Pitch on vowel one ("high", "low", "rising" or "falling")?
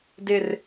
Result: falling